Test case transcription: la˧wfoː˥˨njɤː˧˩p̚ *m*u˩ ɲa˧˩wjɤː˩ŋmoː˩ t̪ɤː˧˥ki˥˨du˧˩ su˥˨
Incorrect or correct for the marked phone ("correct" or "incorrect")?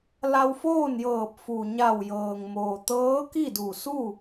incorrect